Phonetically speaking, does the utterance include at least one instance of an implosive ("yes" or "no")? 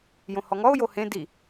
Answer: no